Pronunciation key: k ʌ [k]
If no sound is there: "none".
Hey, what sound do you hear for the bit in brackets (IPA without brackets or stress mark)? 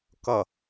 none